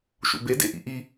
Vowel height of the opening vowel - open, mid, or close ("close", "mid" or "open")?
close